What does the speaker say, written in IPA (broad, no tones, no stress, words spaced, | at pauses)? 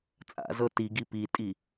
t͡sʼa̰zɤ tiɡi pitʼi